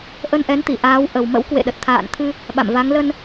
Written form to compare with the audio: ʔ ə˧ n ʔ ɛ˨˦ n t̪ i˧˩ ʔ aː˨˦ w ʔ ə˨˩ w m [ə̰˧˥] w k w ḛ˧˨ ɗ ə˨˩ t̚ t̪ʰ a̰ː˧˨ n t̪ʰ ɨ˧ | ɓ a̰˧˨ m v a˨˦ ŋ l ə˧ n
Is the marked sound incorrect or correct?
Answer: correct